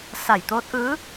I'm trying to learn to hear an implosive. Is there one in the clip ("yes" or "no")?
no